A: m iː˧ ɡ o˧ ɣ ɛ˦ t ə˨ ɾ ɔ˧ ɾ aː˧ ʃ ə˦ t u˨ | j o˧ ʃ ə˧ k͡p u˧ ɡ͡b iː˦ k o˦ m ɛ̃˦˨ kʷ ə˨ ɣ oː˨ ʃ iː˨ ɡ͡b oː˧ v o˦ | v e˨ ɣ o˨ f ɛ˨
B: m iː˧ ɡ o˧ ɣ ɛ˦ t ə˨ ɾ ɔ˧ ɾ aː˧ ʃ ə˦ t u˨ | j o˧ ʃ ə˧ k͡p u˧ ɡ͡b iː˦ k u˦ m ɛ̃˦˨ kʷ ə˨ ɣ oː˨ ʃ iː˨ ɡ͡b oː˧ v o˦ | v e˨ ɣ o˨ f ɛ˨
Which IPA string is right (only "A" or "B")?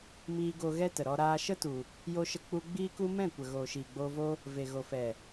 B